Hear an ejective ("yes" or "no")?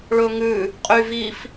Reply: yes